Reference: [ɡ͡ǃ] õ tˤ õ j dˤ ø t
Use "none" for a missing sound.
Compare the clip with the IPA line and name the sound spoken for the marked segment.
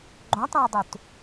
ɡ͡ǃ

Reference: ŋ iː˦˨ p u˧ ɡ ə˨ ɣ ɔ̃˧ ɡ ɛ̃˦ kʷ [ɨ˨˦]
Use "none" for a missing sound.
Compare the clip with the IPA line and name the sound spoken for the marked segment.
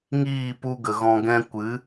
ɨ˨˦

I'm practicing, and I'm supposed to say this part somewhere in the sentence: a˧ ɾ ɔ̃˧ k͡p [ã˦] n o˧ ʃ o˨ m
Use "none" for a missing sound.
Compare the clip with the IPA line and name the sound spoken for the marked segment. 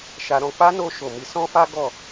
a˦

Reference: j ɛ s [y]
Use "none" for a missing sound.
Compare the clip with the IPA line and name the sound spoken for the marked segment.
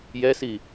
i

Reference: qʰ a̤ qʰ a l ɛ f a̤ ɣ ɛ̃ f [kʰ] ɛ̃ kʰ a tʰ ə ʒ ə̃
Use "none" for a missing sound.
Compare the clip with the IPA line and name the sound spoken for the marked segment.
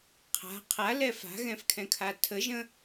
kʰ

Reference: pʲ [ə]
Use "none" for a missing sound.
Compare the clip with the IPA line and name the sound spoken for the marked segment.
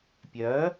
œ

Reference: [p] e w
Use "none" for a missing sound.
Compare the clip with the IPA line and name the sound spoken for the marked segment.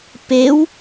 p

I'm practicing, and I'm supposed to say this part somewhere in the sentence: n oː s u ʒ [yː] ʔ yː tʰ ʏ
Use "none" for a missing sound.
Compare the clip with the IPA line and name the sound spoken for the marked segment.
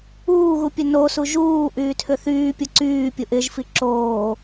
uː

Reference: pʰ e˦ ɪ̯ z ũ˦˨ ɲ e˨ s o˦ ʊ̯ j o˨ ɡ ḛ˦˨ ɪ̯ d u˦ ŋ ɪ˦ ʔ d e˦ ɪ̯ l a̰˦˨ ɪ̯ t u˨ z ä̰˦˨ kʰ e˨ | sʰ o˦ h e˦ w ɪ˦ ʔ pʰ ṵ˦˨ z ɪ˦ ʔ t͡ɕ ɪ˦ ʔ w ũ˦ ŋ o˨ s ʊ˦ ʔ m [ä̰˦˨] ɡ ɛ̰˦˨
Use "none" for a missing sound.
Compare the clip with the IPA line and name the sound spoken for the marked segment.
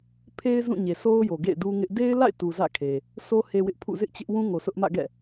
ä̰˦˨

